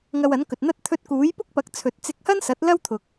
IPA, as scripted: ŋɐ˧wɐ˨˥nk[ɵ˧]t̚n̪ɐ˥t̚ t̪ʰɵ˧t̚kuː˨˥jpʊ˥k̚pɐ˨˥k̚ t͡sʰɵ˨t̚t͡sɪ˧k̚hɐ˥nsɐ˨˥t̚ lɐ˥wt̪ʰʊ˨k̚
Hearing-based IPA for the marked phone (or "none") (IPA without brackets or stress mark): ɵ˨